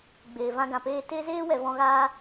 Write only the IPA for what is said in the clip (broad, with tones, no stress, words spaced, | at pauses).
ɡ͡beː˨vã˧ɡã˨peː˧ te˦zeː˦ wɛ˨vɔ̃˧ ɣaː˦